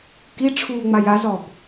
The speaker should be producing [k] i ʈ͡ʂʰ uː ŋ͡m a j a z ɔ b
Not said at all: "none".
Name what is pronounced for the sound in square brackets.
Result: k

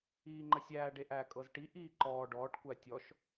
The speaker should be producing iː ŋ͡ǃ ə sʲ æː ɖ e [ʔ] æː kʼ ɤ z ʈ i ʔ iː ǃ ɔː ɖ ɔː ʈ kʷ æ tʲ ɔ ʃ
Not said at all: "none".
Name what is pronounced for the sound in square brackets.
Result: ʔ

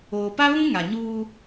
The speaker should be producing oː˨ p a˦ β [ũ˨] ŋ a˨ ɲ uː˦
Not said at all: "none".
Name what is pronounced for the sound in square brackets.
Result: ũ˦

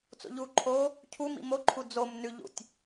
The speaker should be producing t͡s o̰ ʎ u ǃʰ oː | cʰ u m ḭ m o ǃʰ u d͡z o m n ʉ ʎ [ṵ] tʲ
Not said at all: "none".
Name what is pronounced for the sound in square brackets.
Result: ṵ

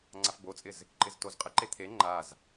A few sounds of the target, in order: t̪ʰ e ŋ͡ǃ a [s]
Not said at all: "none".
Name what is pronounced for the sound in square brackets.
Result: z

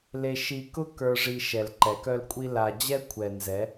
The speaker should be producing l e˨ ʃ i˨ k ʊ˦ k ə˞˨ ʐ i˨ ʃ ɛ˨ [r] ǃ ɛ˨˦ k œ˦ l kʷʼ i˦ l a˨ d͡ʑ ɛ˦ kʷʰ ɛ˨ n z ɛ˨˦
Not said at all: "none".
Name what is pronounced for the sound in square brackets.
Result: l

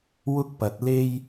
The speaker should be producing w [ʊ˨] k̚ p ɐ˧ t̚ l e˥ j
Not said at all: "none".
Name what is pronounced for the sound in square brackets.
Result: ʊ˥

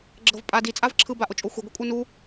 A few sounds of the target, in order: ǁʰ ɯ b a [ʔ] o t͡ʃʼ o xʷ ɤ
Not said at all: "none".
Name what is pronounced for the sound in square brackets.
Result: ʔ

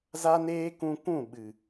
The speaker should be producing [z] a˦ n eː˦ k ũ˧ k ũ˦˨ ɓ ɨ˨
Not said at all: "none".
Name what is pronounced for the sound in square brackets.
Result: z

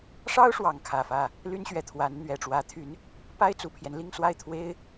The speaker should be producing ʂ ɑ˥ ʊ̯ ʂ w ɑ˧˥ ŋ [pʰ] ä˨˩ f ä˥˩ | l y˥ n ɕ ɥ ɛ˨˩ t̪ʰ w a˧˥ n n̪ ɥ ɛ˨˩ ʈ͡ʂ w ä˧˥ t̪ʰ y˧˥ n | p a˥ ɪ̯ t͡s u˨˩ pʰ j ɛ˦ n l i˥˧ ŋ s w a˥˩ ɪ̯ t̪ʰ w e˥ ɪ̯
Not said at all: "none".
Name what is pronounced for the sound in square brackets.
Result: kʰ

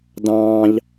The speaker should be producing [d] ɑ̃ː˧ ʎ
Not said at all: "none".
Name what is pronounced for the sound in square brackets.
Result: d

